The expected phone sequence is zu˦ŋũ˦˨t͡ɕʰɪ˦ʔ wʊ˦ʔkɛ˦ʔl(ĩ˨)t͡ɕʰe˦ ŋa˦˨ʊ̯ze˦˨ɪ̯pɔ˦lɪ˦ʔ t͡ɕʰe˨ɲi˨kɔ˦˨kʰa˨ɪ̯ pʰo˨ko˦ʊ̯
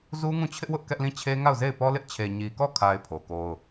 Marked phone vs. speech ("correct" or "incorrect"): incorrect